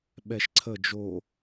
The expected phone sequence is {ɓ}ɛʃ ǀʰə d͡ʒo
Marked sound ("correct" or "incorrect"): correct